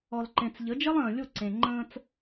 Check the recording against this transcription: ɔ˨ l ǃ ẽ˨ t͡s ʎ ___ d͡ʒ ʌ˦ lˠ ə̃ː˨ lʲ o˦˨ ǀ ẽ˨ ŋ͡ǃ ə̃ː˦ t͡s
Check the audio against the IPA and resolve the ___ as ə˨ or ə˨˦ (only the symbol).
ə˨˦